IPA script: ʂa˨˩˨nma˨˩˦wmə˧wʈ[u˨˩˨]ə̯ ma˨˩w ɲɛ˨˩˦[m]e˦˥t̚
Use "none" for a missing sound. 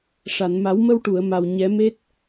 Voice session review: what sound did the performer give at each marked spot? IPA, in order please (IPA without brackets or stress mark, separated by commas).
u˨˩˨, m